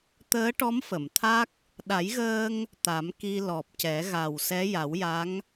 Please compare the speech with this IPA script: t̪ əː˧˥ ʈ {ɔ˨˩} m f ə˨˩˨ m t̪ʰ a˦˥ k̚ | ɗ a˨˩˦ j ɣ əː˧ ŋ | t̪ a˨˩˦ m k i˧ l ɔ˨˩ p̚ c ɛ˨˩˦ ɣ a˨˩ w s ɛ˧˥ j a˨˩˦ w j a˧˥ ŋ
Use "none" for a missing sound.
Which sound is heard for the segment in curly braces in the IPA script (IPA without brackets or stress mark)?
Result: ɔ˧˥